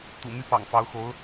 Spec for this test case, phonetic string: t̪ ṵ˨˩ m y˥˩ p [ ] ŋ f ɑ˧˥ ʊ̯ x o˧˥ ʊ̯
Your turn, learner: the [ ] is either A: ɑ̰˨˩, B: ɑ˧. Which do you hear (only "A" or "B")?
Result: A